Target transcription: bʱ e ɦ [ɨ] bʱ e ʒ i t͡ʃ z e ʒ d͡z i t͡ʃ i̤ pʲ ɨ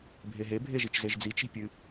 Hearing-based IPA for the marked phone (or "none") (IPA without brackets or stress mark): e